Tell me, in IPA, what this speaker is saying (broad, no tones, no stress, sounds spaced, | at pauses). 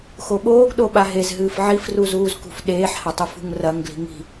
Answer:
x o ɓ oː ɡ ɗ o ɓ a ɦ e z ɦ ɨː f ʕ i f r u z uː z k ṳ f ɗ eː ħ h ɐ tˤ u f ṳ ŋ r ɐ ŋ ɡ l i̤ ŋ i̤